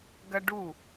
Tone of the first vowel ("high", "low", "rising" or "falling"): high